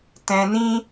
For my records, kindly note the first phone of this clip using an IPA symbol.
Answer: t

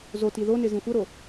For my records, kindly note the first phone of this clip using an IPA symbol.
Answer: z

